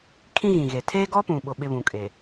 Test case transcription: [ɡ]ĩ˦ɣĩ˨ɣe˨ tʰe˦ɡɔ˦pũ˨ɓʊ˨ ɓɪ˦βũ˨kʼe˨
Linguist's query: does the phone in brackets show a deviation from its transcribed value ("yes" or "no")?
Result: yes